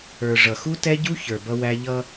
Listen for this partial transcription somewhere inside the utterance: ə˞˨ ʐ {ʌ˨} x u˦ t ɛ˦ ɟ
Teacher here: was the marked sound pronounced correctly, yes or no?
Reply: yes